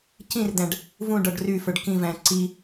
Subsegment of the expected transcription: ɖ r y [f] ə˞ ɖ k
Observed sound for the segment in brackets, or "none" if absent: f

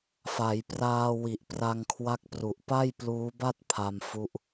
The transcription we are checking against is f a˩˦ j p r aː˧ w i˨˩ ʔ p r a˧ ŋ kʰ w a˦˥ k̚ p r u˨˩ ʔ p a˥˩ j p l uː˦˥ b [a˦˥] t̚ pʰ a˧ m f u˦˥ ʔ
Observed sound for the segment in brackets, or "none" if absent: a˥˩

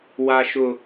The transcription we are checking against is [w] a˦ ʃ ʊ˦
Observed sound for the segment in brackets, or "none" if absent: w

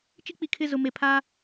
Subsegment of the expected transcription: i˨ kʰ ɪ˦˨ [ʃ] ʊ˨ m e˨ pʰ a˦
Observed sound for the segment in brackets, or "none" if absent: z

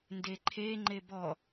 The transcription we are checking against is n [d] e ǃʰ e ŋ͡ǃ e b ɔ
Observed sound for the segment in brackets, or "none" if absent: d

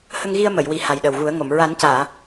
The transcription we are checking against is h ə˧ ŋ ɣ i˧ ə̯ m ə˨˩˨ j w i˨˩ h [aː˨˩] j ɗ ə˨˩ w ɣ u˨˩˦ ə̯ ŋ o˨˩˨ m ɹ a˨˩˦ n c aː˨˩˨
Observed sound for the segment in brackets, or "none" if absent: a˨˩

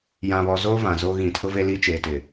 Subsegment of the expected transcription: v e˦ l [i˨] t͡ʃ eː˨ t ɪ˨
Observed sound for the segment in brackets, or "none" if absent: i˦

